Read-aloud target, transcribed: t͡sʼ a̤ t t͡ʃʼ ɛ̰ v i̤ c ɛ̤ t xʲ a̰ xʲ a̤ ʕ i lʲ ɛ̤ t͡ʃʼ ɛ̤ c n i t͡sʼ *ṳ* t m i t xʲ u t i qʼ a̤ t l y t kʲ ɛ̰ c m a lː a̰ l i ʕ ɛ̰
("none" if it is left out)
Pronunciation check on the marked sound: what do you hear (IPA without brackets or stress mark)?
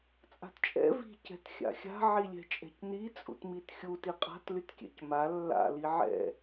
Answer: ṵ